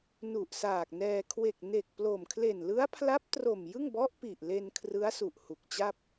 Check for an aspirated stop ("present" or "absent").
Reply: present